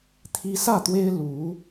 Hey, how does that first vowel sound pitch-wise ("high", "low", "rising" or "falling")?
high